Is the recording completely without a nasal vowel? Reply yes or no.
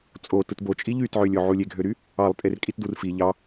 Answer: yes